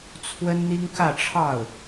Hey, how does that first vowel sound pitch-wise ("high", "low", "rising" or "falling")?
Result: high